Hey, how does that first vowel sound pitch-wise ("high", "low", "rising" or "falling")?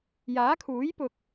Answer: rising